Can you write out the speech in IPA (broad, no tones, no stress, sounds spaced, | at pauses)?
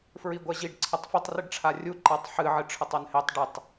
f ɹ i ɡʷ ɐ ʑ i ɖ ǀʰ ɐ tˤ f ɵ tˤ r ɨ ɖ ʈ͡ʂʰ a rʲ u ǃ a tˤ ħ ɨ ʕ ɨ ʈ͡ʂʰ ɵ tˤ o n h e tˤ ɖ ɨ tˤ